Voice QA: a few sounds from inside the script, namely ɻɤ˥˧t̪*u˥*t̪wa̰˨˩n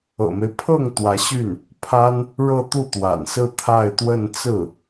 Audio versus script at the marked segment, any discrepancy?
yes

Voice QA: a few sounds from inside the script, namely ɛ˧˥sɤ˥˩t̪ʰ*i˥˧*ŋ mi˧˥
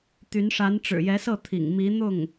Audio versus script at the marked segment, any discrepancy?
yes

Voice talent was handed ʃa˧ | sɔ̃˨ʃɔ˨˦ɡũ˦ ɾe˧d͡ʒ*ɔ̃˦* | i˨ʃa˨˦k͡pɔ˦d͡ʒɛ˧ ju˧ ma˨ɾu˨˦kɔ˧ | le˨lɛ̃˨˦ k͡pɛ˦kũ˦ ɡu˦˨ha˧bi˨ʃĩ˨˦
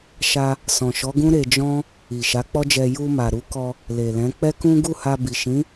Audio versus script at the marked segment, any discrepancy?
no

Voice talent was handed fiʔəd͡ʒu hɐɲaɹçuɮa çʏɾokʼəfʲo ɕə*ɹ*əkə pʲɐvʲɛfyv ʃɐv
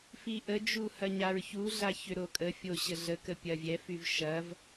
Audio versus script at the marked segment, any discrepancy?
yes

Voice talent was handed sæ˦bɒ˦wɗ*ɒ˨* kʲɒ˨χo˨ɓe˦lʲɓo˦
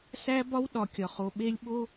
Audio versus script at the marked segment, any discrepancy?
no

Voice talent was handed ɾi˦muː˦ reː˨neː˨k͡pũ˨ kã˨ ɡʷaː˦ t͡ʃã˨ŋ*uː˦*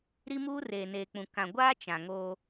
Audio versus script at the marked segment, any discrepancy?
yes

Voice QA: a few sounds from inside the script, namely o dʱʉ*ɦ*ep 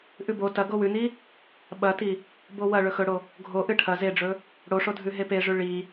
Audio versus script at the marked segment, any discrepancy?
no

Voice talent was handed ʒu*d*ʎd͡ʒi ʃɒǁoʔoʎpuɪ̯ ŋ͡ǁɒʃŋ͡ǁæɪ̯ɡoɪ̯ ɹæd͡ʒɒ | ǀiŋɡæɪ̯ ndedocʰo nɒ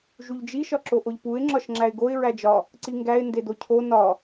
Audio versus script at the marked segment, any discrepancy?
yes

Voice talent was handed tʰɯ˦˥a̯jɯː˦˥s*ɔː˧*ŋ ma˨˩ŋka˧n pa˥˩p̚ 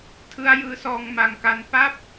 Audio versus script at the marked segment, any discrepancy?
no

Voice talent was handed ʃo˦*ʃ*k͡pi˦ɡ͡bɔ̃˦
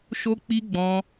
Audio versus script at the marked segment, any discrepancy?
yes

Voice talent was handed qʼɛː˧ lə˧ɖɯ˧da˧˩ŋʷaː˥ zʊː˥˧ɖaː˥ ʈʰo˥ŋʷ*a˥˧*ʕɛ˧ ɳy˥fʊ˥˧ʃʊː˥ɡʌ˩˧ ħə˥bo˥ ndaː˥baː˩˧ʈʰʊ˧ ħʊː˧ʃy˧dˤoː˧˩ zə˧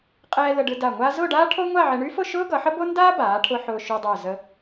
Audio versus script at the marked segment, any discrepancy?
no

